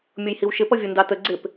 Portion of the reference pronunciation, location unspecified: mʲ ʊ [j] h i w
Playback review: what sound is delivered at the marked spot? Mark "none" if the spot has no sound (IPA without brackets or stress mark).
j